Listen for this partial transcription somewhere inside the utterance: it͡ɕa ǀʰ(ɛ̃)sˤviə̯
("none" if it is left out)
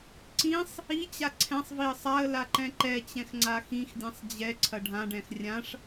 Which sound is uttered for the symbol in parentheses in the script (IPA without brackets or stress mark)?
ɛ̃